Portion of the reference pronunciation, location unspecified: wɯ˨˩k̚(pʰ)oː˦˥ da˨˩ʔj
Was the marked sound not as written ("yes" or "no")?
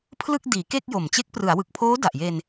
no